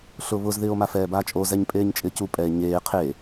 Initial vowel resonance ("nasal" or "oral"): oral